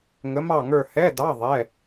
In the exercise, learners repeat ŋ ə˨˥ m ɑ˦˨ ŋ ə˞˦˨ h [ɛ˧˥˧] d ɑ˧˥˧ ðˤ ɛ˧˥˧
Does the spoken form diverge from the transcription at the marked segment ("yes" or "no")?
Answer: no